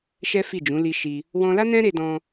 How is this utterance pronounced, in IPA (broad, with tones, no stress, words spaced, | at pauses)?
ʃɛ˦fi˦˨d͡ʒũ˨˦ li˧ ʃi˧ | wɔ̃˧la˦ nɛ̃˦ɾe˧dɔ̃˧